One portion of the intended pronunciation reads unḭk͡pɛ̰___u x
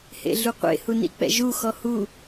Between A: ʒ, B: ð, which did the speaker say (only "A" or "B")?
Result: A